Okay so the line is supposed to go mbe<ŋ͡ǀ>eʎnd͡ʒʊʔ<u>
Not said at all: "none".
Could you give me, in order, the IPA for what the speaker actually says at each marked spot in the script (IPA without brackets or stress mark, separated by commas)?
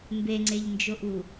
ŋ͡ǀ, u